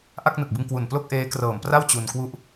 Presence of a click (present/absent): absent